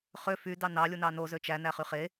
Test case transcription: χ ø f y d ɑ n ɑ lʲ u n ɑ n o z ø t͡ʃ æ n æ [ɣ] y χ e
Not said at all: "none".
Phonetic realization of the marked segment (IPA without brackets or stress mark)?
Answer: χ